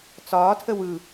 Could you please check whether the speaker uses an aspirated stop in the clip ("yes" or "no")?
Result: yes